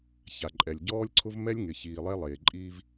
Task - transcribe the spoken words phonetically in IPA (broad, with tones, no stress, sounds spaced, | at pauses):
ç a˨ ǃʼ ɛ˨ lʲ ɟ ɔː˦ lʲ ǀʰ ʊ˦ v m ɛ˦ lʲ ŋ ɪ˨ ç iː˨ lˠ ɛ˦ lˠ eː˨ ǃʼ iː˦ v